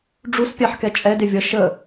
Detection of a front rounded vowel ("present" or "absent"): absent